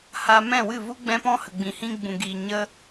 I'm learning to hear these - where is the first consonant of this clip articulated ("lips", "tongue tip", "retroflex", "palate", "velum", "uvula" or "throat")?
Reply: throat